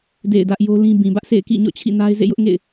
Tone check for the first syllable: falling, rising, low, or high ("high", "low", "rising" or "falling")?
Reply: falling